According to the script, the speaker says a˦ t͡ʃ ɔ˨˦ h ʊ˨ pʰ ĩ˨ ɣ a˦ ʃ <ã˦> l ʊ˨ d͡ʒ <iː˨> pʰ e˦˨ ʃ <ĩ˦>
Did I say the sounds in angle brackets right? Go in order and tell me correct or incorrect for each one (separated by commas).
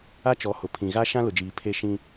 correct, correct, correct